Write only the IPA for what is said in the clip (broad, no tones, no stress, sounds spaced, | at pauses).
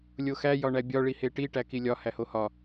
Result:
lʲ o x æ j ɒ ɳ æ bʲ ɒ ɭ i h e ʈ i ʈ æ k i lʲ ɒ h æ h o h ɒ